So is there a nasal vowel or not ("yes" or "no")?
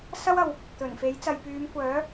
no